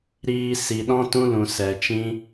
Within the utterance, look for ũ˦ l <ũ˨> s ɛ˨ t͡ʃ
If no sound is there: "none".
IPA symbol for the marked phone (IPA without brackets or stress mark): ũ˨